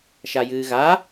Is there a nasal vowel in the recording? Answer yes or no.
no